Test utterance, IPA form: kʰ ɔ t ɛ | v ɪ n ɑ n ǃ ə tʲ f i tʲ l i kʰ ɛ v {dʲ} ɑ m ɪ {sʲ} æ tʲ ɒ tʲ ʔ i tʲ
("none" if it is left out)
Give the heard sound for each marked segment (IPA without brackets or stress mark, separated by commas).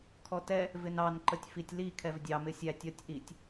dʲ, sʲ